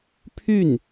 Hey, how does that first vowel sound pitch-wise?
falling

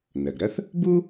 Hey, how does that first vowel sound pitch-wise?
low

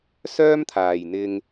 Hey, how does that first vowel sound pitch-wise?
high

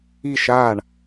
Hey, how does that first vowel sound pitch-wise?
falling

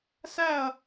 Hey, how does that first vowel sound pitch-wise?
falling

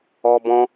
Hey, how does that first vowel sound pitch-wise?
high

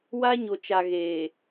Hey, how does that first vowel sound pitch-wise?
high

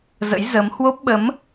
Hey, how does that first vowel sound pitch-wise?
rising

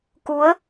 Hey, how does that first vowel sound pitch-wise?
rising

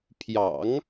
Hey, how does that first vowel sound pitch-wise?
low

